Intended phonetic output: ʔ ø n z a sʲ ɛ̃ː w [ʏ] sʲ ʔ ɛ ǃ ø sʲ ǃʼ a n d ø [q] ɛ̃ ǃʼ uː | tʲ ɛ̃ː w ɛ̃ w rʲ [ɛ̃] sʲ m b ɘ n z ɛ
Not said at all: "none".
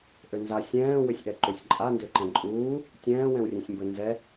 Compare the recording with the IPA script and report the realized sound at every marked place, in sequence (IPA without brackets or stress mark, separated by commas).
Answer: ʏ, ǃ, ẽ